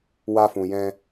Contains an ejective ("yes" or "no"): no